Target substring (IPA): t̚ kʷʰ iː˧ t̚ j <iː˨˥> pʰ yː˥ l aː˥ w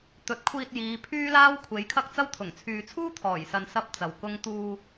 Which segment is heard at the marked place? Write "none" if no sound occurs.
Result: iː˨˧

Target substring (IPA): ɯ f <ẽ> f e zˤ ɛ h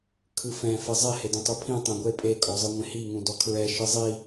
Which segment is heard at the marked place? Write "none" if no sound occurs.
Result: ɛ̃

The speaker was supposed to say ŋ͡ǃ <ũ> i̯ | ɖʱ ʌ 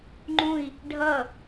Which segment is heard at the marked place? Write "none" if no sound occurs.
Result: ũ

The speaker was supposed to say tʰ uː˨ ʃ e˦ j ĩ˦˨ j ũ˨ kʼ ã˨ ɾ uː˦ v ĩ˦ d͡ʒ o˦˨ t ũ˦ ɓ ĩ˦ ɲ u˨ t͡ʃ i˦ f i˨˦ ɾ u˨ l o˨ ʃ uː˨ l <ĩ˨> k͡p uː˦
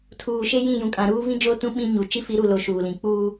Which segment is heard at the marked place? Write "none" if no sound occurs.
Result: ĩ˨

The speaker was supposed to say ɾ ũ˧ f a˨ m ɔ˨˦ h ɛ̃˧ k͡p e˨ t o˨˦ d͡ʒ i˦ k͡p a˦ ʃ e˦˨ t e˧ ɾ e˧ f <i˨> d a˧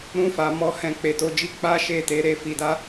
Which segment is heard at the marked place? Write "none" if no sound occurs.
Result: i˨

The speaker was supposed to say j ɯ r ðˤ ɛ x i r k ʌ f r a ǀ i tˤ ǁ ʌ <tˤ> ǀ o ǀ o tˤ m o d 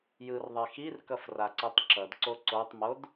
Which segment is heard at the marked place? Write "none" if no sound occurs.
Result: d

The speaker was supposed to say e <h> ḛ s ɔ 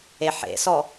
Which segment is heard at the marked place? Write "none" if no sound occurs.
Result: ħ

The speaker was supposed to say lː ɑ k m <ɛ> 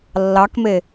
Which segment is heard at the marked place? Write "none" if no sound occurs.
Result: e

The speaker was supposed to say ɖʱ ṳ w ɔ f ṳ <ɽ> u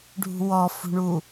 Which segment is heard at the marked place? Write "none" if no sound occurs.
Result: ɳ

